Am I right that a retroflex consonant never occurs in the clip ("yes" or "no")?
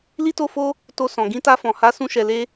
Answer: yes